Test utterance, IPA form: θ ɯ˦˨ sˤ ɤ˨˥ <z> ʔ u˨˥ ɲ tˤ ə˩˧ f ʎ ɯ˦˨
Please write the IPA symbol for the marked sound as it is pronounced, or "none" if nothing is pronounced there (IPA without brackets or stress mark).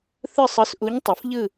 s